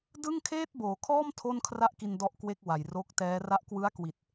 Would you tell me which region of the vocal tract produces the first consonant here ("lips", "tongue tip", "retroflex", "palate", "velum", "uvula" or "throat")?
tongue tip